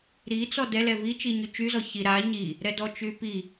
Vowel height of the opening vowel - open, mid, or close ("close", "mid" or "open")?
close